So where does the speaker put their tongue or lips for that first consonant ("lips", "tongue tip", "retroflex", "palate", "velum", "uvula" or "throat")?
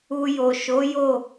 palate